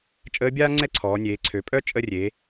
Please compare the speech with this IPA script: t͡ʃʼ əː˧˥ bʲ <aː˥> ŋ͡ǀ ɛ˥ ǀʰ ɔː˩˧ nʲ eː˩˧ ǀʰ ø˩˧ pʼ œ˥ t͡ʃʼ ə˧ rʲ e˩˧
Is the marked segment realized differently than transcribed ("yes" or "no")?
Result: no